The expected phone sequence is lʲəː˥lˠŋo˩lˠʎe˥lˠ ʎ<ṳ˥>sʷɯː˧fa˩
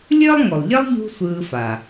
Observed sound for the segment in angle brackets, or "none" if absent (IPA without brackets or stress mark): ṳ˥